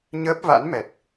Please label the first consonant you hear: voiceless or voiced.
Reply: voiced